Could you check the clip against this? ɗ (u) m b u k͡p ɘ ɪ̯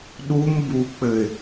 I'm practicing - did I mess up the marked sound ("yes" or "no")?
no